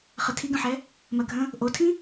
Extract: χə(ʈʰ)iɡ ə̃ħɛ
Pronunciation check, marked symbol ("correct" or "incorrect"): incorrect